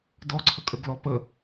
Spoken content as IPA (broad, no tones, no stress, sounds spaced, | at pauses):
d ɔ ǀʰ ə kʼ ə ɡ l ɔ p ə